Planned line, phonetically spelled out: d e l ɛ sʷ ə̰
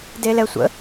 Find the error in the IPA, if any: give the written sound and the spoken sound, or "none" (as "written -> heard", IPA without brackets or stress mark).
none